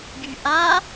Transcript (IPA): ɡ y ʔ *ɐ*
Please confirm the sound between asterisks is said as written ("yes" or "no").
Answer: no